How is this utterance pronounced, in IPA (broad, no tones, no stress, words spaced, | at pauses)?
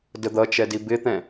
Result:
dəd̪ʌt͡ʃɛ dibɪt̪ɛ̃